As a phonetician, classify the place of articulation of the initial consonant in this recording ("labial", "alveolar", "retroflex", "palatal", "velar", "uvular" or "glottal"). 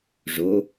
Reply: retroflex